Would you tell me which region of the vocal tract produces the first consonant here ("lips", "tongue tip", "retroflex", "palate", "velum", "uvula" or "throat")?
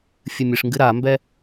lips